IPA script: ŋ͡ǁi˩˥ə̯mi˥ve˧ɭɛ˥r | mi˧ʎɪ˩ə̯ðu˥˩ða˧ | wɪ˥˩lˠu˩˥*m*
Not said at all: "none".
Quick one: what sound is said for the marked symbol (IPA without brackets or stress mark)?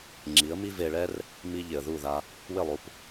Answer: p